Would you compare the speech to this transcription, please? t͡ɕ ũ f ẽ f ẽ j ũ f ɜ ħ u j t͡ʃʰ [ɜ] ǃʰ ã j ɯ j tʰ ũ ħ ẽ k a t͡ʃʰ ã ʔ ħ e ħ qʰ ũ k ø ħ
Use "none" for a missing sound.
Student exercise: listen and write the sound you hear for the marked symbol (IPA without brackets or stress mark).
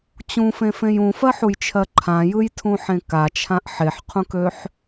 ɜ